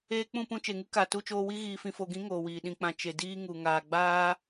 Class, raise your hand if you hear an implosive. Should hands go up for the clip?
yes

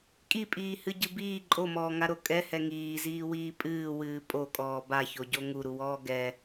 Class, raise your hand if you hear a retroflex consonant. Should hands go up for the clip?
no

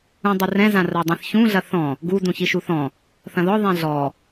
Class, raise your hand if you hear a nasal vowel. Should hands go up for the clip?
yes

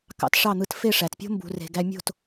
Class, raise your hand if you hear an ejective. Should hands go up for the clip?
no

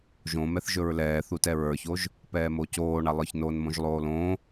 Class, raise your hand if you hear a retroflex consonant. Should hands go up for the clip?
yes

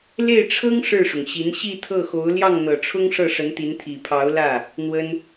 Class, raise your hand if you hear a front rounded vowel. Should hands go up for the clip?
no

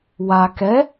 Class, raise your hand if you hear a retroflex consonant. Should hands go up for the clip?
no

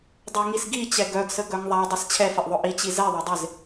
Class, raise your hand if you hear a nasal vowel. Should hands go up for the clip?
no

